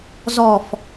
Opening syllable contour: low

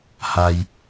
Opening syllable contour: high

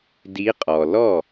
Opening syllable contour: rising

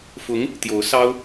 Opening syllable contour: rising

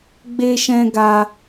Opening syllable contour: high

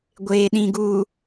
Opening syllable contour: low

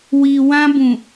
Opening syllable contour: low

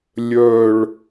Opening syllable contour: falling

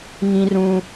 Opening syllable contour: high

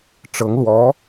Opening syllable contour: rising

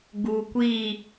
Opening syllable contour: low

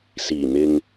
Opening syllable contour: low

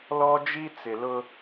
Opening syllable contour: high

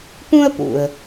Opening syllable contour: high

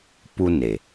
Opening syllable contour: high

